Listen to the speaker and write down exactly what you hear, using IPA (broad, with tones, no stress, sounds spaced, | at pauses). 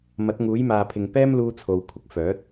m ɐ˨˥ t̚ ŋ uː˨˥ j m aː˨ pʰ ɪ˨ ŋ p ɛː˥ m l uː˧ t͡sʰ o˨ w kʷʰ ɪ˨ k̚ f œː˨˥ t̚